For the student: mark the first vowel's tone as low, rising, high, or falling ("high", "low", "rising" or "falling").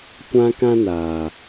high